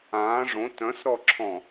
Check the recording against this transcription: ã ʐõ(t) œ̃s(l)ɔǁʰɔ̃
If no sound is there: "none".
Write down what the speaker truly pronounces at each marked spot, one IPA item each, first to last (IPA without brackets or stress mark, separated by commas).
t, ɾ